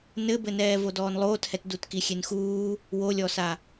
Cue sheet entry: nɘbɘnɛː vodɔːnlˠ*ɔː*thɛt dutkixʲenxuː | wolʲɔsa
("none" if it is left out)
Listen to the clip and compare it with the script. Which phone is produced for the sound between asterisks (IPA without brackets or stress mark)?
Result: oː